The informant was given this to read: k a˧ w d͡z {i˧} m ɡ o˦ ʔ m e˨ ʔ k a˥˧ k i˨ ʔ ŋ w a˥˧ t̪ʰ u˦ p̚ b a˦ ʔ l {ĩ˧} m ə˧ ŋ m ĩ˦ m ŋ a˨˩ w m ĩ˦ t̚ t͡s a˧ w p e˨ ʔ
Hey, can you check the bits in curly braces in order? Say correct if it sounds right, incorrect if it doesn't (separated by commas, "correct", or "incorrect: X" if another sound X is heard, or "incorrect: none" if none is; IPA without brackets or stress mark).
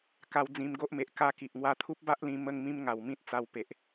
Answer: incorrect: ĩ˧, correct